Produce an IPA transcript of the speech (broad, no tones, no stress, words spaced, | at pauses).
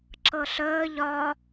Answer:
ǁɤɬəː ʎɒ